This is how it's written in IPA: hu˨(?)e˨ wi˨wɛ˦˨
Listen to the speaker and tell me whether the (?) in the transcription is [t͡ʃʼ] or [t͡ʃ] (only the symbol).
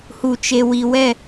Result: t͡ʃ